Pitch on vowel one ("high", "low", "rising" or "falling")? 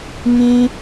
high